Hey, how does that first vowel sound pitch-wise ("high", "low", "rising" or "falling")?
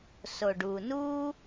low